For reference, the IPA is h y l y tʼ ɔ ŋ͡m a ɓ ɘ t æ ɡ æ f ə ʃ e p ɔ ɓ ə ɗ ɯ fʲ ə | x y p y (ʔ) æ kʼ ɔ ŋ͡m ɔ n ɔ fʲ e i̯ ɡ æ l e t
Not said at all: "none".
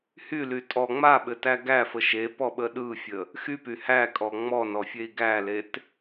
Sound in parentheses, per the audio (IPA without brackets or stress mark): h